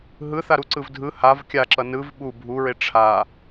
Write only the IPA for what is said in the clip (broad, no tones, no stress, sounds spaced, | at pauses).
ɦ ɯ θ a ɾ u ǀ ɯ v dʱ ɯ h a v kʲ a ǁ ʌ n ɯ v ɓ u bʱ u ɹ e ʈ͡ʂʰ a